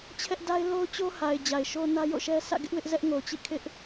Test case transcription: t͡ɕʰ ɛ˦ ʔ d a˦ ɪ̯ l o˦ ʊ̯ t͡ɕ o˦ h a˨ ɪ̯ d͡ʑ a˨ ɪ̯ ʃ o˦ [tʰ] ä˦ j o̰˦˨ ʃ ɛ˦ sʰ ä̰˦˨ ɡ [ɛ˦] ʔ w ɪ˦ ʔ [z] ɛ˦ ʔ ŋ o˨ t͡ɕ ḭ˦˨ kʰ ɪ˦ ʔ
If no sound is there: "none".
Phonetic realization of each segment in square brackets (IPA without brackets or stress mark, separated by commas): n, ɪ˦, z